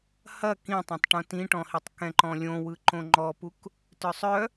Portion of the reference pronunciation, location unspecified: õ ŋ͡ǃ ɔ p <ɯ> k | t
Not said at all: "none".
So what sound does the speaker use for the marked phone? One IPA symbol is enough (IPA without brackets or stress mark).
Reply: u